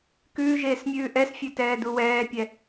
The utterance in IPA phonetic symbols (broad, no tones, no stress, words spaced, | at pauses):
kʉːʒeːsmʲʉː ʔɛsfʲʉ tɛːduwɛːpʲɛ